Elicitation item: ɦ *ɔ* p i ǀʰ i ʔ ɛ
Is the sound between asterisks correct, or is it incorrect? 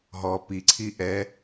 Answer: correct